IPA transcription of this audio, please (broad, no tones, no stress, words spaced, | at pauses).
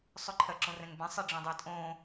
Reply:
sˤʉǃʰɐ ǁõrɛ̃ŋbɛ̃ sˤɨɖ͡ʐɛ̃dˤɜtʼõ